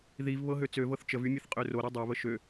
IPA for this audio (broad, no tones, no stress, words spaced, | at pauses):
ðiv βɤɦøt͡søvɤθ t͡ʃəvy mʲəθqʼøroɾø dˤøβə ʃø